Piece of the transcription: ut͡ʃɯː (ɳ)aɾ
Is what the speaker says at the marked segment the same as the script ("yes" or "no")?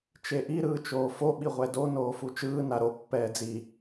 no